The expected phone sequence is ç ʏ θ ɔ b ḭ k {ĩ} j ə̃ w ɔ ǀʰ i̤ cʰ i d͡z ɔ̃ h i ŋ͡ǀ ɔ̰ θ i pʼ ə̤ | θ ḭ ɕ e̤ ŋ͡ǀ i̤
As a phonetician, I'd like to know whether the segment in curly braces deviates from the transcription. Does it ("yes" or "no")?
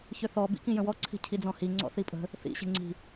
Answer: no